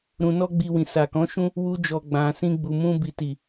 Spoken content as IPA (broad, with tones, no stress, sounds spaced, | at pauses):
ɾ ũ˧ n ɔ˦ ɡ͡b i˧ w ĩ˨ s a˨ k ɔ̃˨˦ ʃ ũ˦ | w u˧ d͡ʒ ɔ˨ ɡ͡b ã˨ s ĩ˧ ɡ͡b u˨ m ũ˧ b i˨ t i˨